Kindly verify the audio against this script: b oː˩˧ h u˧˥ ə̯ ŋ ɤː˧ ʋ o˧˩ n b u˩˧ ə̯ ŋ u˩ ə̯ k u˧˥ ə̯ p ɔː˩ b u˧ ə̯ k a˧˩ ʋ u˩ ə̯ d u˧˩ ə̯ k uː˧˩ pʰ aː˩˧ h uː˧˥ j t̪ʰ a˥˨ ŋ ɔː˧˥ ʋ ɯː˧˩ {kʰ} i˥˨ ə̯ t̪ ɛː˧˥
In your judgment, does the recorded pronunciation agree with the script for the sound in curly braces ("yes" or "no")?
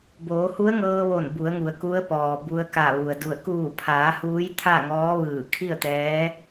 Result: yes